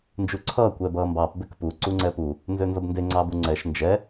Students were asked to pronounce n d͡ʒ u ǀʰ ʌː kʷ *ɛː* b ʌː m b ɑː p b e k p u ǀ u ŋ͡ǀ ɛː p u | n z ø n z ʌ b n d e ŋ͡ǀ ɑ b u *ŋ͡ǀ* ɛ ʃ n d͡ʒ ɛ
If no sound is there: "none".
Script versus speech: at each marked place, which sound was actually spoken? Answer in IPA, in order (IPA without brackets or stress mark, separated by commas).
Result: ɛː, ŋ͡ǀ